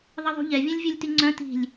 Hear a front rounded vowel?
yes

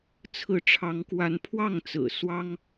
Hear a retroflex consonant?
yes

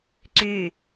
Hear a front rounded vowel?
yes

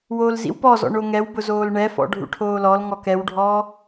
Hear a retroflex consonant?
yes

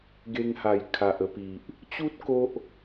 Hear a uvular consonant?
no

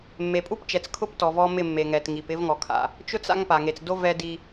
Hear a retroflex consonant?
no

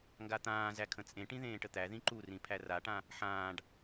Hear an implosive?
no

